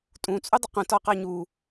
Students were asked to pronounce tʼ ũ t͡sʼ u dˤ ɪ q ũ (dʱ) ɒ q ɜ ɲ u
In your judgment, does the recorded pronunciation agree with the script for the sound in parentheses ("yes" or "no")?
no